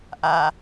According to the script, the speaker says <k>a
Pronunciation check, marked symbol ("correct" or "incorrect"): incorrect